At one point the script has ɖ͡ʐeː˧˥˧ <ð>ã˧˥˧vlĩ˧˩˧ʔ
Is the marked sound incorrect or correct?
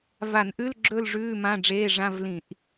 incorrect: ʐ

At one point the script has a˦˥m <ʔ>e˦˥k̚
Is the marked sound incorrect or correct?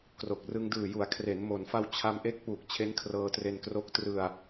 correct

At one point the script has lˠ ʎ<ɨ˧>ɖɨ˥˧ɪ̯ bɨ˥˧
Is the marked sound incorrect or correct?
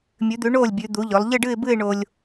incorrect: ɨ˥˧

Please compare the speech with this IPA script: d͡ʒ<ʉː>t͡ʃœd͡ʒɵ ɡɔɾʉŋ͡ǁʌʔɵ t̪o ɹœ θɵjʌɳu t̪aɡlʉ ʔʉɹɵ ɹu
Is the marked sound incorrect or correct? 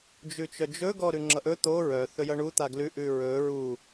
incorrect: ʉ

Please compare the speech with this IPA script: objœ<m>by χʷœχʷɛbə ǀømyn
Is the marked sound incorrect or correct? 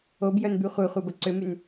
incorrect: n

